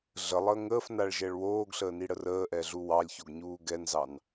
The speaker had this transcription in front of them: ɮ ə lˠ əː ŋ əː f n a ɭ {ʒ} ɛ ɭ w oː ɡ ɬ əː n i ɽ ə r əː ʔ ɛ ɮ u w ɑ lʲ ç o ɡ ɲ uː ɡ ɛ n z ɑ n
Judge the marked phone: correct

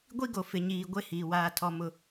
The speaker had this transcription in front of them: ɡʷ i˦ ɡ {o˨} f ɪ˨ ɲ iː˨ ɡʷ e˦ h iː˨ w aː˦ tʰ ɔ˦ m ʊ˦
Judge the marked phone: correct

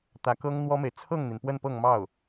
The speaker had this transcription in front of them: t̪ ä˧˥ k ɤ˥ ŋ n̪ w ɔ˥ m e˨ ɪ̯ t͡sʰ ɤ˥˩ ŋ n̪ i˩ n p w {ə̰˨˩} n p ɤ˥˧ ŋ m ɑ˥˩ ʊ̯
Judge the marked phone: incorrect: ə˥˧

